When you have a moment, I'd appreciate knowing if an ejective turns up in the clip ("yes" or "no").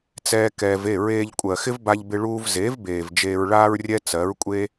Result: yes